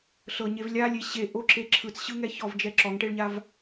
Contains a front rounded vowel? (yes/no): no